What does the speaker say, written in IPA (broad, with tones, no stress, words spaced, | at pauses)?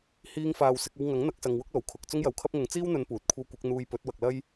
hiː˥ŋfaː˧wsɪ˨˥k̚ɐ˥w ŋɐ˨˥ŋn̪ɐ˨˥k̚sɐ˨ŋ wʊ˥k̚ lo˨˩wkʰʊ˨k̚ t͡sʊ˥ŋjɐ˨wkʰɐ˥p̚ŋʊ˨˥ŋ t͡siː˥wn̪ɵ˨˧n puː˨t̚kʷʰɐ˥w kʷɪ˨˥k̚n̪uː˧jpɵ˨˥t̚ wɐ˨k̚lɐ˥j